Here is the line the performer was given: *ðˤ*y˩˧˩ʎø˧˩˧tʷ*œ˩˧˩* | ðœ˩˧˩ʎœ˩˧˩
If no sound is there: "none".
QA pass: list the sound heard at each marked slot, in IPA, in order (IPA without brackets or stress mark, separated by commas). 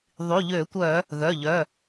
ðˤ, œ˧˩˧